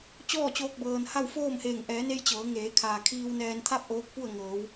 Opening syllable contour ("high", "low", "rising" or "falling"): falling